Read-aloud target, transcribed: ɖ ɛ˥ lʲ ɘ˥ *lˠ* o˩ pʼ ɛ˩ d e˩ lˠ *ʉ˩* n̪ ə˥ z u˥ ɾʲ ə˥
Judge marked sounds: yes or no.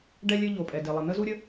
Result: no, no

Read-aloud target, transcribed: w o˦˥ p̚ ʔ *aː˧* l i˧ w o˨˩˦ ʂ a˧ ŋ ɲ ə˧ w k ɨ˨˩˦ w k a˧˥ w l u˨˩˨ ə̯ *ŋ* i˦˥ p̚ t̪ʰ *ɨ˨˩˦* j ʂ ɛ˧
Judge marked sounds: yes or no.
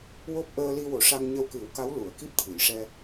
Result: no, no, yes

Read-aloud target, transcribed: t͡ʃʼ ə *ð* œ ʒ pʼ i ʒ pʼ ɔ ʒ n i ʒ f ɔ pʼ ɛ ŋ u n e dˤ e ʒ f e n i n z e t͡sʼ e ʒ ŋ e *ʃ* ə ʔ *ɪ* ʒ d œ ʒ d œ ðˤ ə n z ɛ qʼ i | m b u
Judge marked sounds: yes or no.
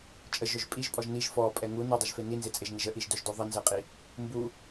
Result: no, no, no

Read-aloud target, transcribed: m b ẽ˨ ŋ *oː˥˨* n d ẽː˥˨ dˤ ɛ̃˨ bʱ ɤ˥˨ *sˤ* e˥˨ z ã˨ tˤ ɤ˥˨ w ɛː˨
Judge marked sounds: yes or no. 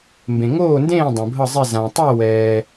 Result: yes, no

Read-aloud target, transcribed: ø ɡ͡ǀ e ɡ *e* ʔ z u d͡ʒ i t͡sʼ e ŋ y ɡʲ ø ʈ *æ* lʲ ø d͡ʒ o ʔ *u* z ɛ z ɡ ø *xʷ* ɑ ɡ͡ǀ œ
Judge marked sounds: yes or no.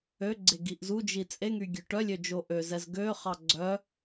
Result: no, no, no, no

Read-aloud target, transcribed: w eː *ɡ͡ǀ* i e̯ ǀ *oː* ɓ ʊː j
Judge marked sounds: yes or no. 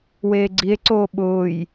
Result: yes, yes

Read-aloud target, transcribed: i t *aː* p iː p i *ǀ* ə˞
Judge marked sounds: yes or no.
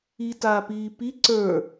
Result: yes, yes

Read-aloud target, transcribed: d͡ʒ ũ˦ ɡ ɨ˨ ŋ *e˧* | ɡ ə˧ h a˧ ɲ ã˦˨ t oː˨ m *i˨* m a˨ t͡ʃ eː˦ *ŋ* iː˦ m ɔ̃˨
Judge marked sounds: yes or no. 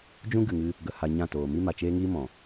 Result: no, no, yes

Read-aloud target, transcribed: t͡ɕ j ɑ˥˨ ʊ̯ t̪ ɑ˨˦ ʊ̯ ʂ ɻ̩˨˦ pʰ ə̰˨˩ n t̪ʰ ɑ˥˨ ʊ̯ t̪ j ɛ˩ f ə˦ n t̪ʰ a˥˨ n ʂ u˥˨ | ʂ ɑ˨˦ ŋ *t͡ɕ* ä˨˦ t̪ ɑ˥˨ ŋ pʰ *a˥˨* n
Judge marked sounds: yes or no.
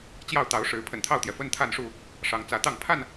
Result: no, yes

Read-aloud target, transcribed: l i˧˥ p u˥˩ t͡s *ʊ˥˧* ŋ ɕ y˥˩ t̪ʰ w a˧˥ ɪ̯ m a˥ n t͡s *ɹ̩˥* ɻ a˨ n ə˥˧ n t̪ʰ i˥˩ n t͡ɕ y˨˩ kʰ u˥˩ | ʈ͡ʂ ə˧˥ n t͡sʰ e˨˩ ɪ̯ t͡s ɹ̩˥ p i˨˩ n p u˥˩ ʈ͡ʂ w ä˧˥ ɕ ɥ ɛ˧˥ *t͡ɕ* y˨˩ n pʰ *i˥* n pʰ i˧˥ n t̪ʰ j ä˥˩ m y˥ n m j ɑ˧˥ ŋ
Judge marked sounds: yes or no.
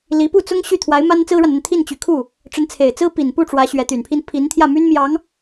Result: no, yes, no, yes

